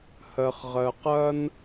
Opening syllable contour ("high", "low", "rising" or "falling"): low